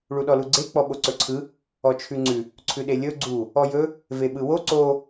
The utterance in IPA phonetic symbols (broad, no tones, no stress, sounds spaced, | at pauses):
ɭ u ɗ ɔ l u ɡ͡ǀ e k͡p ɔ ɓ o ǀ ɵ ǀʰ ɯ | ɔ t͡ʃʰ ʉ ŋ͡ǀ ʉ | ǀʰ ʉ ɗ e lʲ ɵ ɡ͡ǀ u | ɔ j ɵ | v e ɓ ɯ w o ǀ o